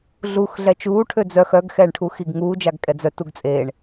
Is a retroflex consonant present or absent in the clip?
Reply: present